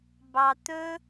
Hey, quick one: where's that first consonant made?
lips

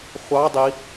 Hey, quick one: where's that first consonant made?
uvula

